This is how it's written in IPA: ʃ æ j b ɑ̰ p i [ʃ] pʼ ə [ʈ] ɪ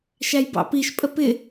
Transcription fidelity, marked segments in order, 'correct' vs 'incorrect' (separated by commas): correct, incorrect